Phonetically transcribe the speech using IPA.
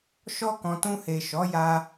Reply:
ʃ ɔ˦ k ɔ̃˧ t ũ˧ h e˨ ʃ ɔ˨˦ j a˧

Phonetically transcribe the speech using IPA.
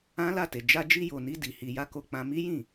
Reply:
ã˦ l a˦˨ t e˨ d͡ʒ a˧ d͡ʒ i˧ j o˨ n i˧ d i˨ h i˧ j a˦ k o˧ k͡p ã˧ m i˦ j ĩ˦˨

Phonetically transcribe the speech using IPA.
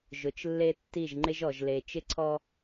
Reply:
ʒ ʊ˨ t͡ʃ lː e˦ tː i˦˨ ʒ ŋ͡ǃ ɪ˦ ʒ ɔ˨ ʒ l e˨ t͡ʃ ɪ˦ ǀʰ ɔ˦

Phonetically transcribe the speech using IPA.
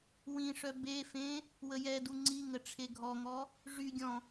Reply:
w ĩ ʂ œ b e f ẽ | w ə j ɛ d u ŋ͡ǀ i ŋ ə ʈ͡ʂʰ e ɡʱ ɔ ŋ ɔ | ʐ y ɡʲ ɔ̃

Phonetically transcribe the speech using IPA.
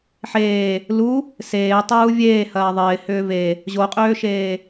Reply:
ħ eː | l u | s eː tˤ uː vʲ eː h ɐː ðˤ ɪː h ʏː v e | ʑ o qʼ øː ʃ eː

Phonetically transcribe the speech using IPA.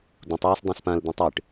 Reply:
d ũ tˤ w ʉ s dˤ õ s p ã l d̪ ĩ tˤ ɨ ʈ

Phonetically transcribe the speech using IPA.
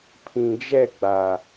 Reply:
pʰ ĩ˨ d͡ʒ ɛ˦˨ ɡ͡b a˨

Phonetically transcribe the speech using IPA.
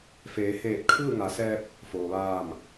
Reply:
f eː˩˧ h eː˧˩ t̚ kʰ ɯː˥˨ ŋ a˩˧ s ɛː˧ p̚ | f oː˩ ʋ aː˧˩ m

